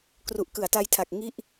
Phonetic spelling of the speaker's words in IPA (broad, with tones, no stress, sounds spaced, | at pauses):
k r u˨˩ ʔ k ɯ˩˦ a̯ t a˧ j tʰ a˨˩ k̚ ŋ i˥˩ ʔ